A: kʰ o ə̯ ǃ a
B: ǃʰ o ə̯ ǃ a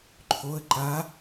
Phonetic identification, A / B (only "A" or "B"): B